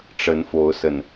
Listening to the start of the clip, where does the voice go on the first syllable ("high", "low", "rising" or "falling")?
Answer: rising